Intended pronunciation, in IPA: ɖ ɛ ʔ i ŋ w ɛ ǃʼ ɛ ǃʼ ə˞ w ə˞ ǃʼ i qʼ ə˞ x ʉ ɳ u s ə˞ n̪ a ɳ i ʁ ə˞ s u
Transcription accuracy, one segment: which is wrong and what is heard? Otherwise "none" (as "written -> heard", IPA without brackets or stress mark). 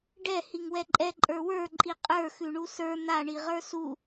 ʔ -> h